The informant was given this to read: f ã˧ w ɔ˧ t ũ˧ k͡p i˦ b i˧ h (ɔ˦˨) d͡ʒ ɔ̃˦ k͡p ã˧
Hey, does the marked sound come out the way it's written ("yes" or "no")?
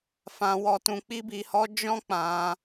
no